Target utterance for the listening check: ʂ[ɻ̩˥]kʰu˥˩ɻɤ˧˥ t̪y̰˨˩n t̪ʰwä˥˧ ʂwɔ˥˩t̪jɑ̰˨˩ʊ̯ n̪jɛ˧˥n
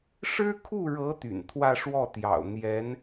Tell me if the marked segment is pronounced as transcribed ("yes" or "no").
yes